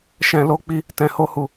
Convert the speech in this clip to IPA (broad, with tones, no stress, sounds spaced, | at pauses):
ʃ ɛ̃˧ l o˦ k͡p i˦ | t ɛ̃˧ h o˦ h u˧